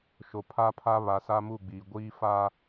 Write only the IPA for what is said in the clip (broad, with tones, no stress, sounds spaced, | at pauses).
ʃ o˨ pʰ a˦ pʰ a˦ β a˨ s a˦ m u˦˨ ɡ͡b iː˨ ɡʷ iː˦ f a˦